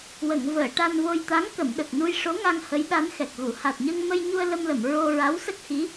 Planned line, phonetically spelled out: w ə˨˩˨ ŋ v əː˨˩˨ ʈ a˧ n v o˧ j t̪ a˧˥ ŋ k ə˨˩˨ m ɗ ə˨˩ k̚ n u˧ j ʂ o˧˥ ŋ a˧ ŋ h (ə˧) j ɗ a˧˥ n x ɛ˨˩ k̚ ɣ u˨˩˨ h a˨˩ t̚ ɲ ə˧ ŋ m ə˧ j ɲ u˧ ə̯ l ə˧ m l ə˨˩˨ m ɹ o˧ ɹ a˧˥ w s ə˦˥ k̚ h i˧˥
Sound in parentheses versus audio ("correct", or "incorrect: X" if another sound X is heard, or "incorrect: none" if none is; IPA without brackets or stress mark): incorrect: ə˧˥